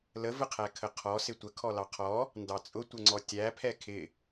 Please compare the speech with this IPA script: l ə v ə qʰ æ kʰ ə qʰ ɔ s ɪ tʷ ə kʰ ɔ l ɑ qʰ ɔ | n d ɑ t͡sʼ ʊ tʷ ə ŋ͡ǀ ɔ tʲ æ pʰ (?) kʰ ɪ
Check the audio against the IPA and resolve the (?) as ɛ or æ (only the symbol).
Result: ɛ